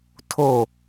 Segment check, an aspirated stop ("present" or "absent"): present